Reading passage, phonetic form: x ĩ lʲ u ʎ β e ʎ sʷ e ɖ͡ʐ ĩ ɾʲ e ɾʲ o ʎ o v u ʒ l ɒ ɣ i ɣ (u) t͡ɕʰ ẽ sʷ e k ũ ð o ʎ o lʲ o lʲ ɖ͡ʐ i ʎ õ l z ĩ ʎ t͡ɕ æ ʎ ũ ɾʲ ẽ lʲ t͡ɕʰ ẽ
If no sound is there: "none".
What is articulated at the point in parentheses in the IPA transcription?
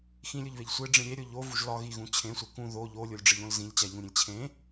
ũ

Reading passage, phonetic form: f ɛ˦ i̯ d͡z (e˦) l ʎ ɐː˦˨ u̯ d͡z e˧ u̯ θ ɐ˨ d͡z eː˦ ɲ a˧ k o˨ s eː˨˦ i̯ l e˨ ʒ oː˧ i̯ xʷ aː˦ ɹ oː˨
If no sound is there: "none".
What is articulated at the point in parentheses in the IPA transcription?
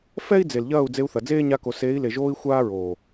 e˨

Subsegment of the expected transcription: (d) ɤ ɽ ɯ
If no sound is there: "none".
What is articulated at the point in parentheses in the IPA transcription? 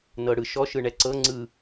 n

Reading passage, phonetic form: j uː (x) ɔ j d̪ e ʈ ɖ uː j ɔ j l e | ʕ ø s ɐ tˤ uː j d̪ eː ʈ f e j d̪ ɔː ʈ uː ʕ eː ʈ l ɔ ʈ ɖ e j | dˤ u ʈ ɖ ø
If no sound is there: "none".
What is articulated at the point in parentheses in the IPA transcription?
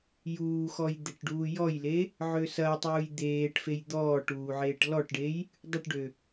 x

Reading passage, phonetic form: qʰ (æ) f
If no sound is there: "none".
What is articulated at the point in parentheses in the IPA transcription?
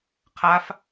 a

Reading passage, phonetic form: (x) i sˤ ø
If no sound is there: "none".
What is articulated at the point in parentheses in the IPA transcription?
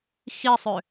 x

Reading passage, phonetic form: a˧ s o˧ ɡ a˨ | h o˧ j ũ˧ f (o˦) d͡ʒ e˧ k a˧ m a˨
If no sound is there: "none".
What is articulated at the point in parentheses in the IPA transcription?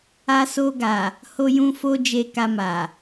o˦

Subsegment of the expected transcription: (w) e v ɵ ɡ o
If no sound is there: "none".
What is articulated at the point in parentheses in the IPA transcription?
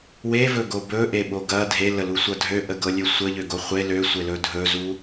w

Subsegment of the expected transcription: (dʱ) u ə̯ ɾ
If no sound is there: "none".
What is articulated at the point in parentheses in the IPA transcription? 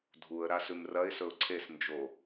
dʱ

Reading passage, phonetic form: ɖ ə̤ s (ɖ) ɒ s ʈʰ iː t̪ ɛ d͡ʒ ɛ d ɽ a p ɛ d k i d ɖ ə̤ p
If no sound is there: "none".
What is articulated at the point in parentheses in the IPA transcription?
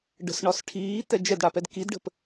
ɳ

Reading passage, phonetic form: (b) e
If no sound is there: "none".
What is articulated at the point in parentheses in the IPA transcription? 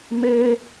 m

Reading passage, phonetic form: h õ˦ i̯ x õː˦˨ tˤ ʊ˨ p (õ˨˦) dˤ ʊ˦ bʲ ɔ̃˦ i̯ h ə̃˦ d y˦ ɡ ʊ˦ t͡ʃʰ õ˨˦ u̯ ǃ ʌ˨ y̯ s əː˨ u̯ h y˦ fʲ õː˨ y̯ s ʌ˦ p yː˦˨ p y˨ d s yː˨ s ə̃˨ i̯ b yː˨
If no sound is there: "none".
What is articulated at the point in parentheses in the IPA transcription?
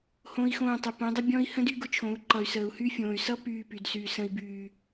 õ˨˦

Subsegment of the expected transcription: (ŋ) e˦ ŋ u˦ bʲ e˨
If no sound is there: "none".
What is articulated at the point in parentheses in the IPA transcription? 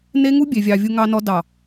n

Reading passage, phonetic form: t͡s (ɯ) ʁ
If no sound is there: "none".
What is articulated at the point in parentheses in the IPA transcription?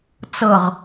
ɤ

